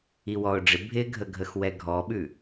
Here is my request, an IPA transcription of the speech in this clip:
i w ɔ ʊ̯ ɖ͡ʐ ɪ bʱ ɪ ɡʱ ə ɡʱ ə x w ɛ ɡʱ ɔ ɓ ʉ

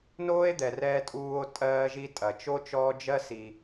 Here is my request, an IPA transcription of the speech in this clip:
n oː˦ e̯ d̪ ɛ˨ r ɛː˧ tʼ uː˧ o̯ tʼ ɜː˧ ʒ i˧ tʼ ɐ˨ t͡ʃ o˦ t͡ʃ ɔː˦ d͡ʒ ɜ˦ s i˧

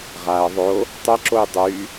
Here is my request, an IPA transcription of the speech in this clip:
ʁ a ə̯ ðˤ o | tˤ ɛ ǁ o j dˤ y

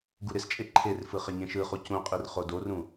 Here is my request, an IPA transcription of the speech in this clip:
ɡ u ɾ ɪ s t͡ʃʼ e ǃʰ e r f ɯ χ ɪ ɲ ẽ ʃ ɯ χ u c ũ qʼ i r χ o d o r ũ

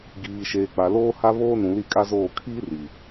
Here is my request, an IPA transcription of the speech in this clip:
ɡ iː˨ ʃ eː˨ k͡p a˨ l oː˦ h a˦ β oː˦ n ũ˨ l i˦˨ kʼ a˦ z oː˦˨ kʰ iː˦ r i˨

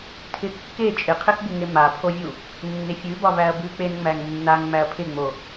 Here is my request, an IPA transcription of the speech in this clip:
tʰ ɪ kː e t͡ʃʼ ɪ qʰ ɪ x b u ŋ e m a pʰ o vʲ u | nː ɪ fʲ ʉ b ɒ v æ ɐ̯ b ʉ k͡p e n ŋ͡m æ ŋ nː a ŋ ŋ͡m æ ɐ̯ pʰ ɪ ŋ͡m o

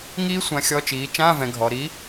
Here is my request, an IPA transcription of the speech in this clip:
ŋ iː˦˥ sʷ ã˨˥ xʲ ɔ˧˥˧ t͡ʃ iː˨˥ t͡ʃ ãː˧˥˧ v ɛ̃˩˧ ɡʱ ɔ˩˧ ɾ i˨˥

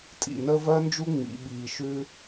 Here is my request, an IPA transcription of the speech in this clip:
tʼ ḭ˧ n əː˦ v ɜ˦ n d͡ʒ u˦ ŋ͡m ḭ˦ ɓ iː˧ ʃ ʉ˦

